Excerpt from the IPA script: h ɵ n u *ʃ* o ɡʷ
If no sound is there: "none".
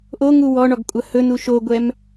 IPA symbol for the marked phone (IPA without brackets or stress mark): ʃ